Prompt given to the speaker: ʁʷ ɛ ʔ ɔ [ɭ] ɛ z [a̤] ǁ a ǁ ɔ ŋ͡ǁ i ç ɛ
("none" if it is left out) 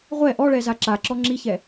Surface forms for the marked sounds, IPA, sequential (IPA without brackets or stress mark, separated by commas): ɭ, a